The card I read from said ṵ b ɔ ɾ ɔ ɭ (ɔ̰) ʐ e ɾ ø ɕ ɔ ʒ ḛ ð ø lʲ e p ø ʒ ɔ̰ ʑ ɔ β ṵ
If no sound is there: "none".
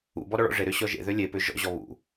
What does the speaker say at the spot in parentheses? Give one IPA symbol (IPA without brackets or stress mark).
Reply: ɔ̰